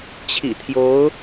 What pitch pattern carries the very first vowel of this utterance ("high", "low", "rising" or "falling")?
low